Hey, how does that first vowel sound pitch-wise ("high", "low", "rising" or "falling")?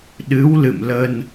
rising